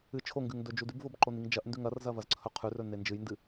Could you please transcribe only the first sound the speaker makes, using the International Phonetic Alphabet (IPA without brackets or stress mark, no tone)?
ɨ